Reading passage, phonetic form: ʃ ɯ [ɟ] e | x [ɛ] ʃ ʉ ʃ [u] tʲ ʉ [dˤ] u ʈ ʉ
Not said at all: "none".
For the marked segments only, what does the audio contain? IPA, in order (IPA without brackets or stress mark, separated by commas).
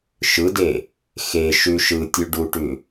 d, e, ɯ, ɖ